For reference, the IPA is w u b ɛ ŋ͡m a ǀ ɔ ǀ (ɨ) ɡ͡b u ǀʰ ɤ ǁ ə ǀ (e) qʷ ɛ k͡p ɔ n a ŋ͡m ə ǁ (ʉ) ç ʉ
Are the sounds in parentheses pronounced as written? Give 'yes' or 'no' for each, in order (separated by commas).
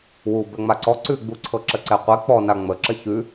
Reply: no, no, no